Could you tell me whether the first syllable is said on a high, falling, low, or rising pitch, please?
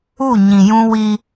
falling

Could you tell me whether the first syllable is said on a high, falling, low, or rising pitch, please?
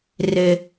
low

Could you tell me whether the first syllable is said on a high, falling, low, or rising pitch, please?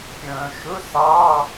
low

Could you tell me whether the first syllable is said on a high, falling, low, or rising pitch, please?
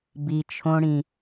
low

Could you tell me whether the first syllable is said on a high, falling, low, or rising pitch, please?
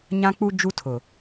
high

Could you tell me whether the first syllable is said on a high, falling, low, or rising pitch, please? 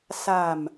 low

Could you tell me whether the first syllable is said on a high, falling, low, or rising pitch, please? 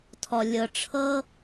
low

